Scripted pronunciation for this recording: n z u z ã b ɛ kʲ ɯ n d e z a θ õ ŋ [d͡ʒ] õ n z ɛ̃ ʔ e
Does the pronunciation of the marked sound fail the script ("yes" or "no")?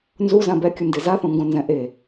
yes